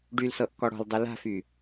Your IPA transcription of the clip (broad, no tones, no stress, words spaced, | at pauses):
ɖylsɤʔkɔ ɽɔ̤ldˤɯ la̤fy